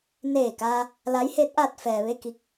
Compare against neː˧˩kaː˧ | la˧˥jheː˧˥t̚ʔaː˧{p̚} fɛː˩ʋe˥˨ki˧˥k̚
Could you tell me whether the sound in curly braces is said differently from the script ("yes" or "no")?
yes